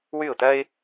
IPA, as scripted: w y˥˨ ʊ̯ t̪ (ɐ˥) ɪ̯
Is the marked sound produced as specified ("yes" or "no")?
yes